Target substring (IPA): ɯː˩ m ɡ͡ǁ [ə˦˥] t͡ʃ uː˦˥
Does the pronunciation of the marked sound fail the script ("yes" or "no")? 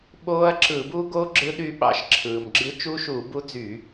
yes